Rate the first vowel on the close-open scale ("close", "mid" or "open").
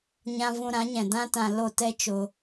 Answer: open